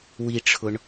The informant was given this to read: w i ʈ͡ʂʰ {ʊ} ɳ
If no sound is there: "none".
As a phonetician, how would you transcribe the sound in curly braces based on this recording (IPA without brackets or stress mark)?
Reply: ʊ